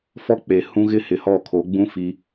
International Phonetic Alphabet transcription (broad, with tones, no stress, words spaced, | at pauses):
fɔ˦ k͡pe˨hũ˦ɣɪ˦ hɪ˨hɔ˦˨kʰo˨˦ ɡ͡bũ˦ fi˦